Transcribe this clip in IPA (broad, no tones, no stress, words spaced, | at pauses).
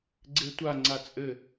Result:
ɡ͡ǀetʷa ŋ͡ǀat͡sʼɘ